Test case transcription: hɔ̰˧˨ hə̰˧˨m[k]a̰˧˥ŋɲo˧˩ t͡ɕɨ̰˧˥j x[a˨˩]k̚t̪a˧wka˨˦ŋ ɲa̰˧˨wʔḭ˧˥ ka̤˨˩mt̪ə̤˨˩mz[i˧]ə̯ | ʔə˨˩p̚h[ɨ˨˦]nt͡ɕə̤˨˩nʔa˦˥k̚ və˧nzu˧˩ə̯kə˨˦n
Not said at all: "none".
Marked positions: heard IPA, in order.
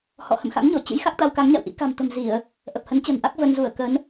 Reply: x, a˦˥, i˧˩˨, ə˨˦

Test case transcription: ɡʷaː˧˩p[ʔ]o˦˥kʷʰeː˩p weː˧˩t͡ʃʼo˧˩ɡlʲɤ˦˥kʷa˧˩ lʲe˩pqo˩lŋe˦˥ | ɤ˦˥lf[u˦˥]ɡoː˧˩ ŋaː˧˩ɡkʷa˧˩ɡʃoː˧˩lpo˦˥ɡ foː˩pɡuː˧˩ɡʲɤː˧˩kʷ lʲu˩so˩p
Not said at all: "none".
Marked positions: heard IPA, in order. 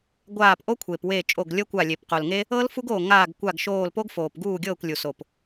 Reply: ʔ, u˦˥

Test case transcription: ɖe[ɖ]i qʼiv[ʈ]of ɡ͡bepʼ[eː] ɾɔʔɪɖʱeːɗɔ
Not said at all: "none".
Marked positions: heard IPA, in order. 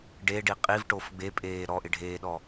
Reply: ɖ, ʈ, eː

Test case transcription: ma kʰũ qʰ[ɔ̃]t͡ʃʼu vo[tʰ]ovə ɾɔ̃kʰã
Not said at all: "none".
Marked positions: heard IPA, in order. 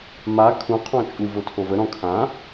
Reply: ɔ̃, tʰ

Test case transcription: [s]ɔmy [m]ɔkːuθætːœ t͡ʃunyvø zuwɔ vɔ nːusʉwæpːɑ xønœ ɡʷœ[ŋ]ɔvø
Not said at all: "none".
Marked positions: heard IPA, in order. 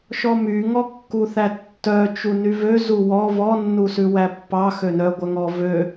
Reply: ʃ, ŋ, ŋ

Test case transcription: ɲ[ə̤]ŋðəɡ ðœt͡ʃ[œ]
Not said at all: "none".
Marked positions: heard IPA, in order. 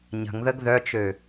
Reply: ə̤, ø

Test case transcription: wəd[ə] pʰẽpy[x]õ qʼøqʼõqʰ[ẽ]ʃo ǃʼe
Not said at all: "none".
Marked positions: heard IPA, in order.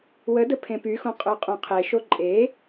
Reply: ə, x, e

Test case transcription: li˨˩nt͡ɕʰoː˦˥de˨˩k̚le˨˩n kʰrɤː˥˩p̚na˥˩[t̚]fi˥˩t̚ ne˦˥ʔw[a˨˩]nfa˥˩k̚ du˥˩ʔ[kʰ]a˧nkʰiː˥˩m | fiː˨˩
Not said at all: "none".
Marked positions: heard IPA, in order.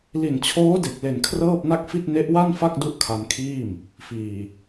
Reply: k̚, a˥˩, kʰ

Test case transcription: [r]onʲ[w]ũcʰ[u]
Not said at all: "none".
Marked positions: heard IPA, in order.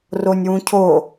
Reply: r, w, o

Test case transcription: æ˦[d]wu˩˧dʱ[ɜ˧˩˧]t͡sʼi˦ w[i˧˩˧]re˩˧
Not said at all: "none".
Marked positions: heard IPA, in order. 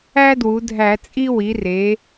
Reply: d, æ˧˩˧, i˩˧

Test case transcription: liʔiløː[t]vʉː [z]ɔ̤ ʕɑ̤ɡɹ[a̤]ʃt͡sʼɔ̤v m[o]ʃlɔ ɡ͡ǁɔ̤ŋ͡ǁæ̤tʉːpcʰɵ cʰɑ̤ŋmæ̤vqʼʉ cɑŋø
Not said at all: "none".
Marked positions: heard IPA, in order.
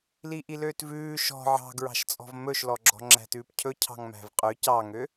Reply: t, ʃ, ɑ̤, ɵ

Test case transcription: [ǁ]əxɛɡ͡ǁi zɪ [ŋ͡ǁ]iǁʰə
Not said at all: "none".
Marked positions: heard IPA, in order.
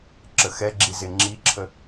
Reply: ǁ, ŋ͡ǁ

